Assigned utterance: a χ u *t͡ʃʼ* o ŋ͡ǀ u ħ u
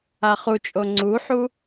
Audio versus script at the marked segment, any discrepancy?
no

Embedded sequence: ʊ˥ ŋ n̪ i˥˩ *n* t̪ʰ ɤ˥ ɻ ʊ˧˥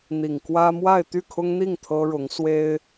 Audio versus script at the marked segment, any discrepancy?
yes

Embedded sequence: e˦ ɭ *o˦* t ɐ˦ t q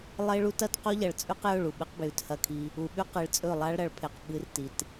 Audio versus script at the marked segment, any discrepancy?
yes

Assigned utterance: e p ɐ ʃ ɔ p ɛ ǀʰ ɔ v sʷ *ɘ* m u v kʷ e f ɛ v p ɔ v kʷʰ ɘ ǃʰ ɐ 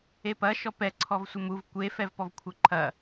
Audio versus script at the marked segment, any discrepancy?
no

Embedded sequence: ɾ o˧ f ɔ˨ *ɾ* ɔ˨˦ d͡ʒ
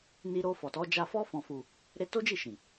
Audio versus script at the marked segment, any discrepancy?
yes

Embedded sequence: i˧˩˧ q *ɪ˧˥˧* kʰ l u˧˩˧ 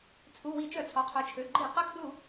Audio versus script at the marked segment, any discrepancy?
yes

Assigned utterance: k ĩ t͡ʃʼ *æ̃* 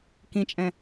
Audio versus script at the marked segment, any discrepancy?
yes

